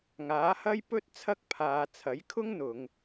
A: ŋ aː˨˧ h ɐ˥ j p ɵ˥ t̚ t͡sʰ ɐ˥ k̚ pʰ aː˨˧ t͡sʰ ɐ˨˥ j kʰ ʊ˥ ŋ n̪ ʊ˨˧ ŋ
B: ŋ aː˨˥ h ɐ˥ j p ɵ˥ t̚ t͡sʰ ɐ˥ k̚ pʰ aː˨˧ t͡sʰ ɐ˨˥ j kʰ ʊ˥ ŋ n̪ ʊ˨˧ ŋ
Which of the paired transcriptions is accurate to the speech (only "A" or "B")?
B